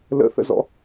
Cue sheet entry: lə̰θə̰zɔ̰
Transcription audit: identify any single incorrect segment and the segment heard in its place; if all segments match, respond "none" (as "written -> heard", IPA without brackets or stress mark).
none